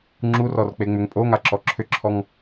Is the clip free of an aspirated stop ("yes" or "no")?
no